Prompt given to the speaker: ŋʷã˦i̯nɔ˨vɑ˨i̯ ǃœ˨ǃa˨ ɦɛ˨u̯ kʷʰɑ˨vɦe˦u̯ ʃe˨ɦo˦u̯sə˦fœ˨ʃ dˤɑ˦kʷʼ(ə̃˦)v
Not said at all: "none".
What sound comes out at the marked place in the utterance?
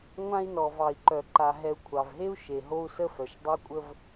ə˦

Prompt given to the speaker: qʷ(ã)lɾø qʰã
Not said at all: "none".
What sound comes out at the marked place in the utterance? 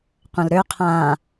ɐ̃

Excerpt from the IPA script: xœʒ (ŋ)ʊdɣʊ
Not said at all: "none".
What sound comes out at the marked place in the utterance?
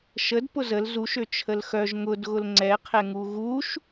ŋ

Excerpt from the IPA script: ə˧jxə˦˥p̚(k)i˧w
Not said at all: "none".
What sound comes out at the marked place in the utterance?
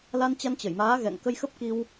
k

